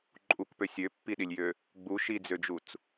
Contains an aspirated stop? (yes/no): no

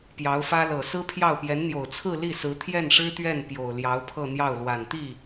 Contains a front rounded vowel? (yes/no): no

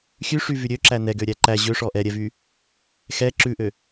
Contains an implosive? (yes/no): no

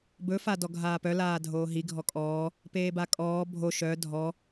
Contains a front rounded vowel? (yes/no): yes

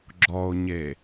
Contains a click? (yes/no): yes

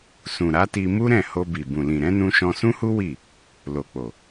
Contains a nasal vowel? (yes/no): yes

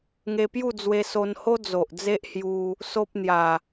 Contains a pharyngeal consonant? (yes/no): no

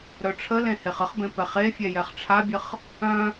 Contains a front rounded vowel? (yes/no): yes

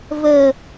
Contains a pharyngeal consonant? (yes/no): no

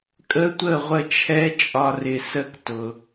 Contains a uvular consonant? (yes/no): yes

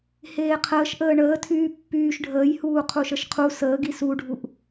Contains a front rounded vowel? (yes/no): yes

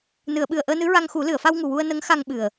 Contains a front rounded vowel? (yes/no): no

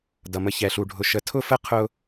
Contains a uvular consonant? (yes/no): yes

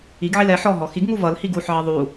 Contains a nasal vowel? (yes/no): no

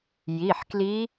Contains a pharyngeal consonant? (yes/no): yes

